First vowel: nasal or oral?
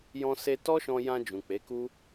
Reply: nasal